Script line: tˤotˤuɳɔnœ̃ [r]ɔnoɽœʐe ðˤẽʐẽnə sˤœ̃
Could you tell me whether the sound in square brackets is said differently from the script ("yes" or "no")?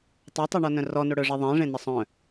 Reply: no